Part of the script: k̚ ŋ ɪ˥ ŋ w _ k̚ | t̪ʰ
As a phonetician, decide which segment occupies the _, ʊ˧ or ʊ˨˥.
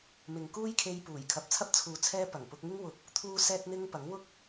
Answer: ʊ˧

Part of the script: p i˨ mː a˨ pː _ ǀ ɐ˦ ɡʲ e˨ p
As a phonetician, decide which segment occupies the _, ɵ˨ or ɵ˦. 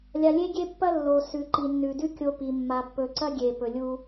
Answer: ɵ˨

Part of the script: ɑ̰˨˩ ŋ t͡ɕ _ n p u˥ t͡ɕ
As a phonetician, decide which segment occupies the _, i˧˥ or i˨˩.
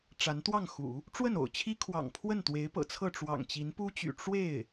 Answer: i˧˥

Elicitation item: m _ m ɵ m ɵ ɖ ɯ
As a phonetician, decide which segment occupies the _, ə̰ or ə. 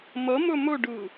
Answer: ə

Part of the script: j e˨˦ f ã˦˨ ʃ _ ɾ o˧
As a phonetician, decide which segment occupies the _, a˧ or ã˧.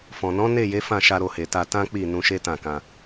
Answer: a˧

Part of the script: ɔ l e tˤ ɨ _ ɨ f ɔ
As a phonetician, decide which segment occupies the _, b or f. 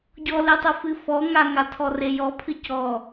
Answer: f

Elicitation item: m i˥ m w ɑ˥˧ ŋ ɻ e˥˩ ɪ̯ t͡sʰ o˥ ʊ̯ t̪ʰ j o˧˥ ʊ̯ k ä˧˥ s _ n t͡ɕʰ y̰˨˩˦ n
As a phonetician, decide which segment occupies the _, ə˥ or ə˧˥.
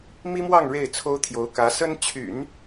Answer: ə˥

